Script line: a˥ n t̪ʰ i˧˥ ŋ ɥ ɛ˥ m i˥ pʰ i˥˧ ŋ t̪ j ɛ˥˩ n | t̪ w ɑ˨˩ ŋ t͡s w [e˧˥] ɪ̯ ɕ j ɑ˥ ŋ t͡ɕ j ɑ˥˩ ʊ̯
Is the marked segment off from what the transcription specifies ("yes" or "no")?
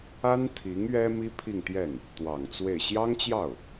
yes